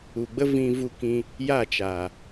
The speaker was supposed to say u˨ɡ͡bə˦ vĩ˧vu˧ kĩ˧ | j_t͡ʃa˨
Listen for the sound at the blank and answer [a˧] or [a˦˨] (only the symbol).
a˦˨